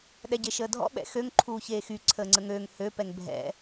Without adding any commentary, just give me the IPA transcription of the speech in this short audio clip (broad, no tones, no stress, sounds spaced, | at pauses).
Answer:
ɗ ɛ ɟ e ʃ əː dʱ ɔ̰ ɓ ɛ̰ x ø ŋ ǃʰ uː ç eː x y ǀʰ əː ŋ͡ǀ ə ŋ øː ŋ h ø p ɛ ŋ bʱ ɛ̰